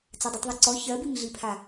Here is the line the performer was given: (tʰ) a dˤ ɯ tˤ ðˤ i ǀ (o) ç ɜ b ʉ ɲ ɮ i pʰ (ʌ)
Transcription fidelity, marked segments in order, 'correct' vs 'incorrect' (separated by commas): incorrect, incorrect, incorrect